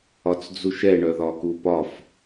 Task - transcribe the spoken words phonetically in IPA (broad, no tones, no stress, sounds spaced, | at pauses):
ɒ t͡s d͡z u ʃ ɛ ɳ œ ð ɒ k u p ɒ f